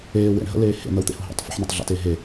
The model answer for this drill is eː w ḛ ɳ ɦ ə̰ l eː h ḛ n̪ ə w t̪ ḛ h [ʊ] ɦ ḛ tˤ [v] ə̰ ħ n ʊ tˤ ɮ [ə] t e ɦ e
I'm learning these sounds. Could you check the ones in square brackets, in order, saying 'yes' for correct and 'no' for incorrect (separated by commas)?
yes, no, no